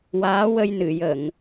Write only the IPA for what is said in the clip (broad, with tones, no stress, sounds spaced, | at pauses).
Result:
w aː˧˥ w ə˧ j n ɨ˨˩˨ j ə˨˩˨ ŋ